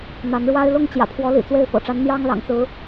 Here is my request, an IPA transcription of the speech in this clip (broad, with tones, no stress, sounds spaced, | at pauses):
n̪ a˨˦ n ɻ w a˦ ɪ̯ l ʊ˥˨ ŋ t͡ɕ j ä̰˨˩ pʰ w ɔ˨˦ l ḭ˨˩ t͡s w e˥˨ ɪ̯ f ɤ̰˨˩ ʈ͡ʂ a˨˦ n n̪ j ɑ˦ ŋ l ɑ̰˨˩ ŋ t͡s ɹ̩˨˦